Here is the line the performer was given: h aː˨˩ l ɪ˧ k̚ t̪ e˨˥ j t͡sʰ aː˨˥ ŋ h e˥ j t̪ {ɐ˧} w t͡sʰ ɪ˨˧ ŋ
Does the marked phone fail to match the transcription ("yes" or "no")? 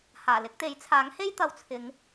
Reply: no